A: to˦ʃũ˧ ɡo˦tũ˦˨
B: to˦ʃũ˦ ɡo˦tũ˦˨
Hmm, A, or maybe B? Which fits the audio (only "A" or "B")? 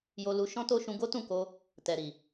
A